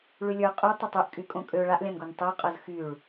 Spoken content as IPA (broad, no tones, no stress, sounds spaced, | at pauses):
ɭ y lʲ ə˞ qʼ y tˤ o tˤ ø ʔ kʼ y kʼ õ kʼ ø ɭ a ʔ lʲ ã n ɡ o n tˤ u qʼ ɤ z x y ɭ